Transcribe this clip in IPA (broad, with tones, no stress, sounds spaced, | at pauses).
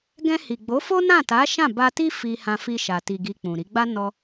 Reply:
ɡ ɛ̃˧ h i˨ ɡ͡b o˨˦ f o˦ n ã˦˨ t a˨˦ ʃ ã˦˨ b a˧ t i˦ f i˧ h ã˧ f i˧ ʃ a˨ t i˨ ɡ i˧ k͡p ũ˨ ɾ i˨˦ ɡ͡b a˦ n ɔ˧